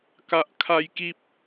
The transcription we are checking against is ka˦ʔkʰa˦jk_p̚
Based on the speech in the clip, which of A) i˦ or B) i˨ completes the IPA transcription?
A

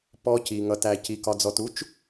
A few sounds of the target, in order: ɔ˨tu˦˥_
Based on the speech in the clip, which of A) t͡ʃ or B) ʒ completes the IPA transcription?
A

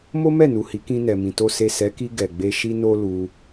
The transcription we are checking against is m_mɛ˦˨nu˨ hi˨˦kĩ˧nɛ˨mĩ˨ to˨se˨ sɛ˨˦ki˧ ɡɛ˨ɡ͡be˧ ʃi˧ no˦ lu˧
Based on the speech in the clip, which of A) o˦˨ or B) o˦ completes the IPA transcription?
B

